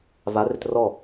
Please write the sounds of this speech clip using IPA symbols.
v a r ɪ t r ɔ

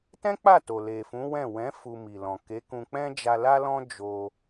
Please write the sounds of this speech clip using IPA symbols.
t ɛ̃˦ k͡p a˦˨ t o˨ l e˨ f ũ˨˦ w ɛ̃˦˨ w ɛ̃˨˦ f u˧ m i˨ l ɔ̃˨ k e˨˦ k ũ˧ k͡p ɛ̃˦ d͡ʒ a˧ l a˦ l ɔ̃˦ d͡ʒ o˧

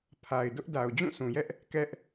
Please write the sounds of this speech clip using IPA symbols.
pʰ a˨ ɪ̯ d ʊ˦ ʔ d a˨ ʊ̯ d͡ʑ ũ˦˨ s ũ˨ j ɛ˦ ʔ | k ɛ˦ ʔ

